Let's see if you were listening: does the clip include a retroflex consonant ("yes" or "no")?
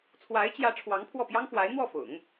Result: yes